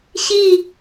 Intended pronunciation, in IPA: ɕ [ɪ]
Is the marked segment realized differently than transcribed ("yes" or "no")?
yes